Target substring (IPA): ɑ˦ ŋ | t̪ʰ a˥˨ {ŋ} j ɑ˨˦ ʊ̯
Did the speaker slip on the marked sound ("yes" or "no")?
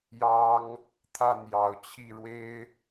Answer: yes